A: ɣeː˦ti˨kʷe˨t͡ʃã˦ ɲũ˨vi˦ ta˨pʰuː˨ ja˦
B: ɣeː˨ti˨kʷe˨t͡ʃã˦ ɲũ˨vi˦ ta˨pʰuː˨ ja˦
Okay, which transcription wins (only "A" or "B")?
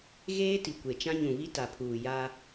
A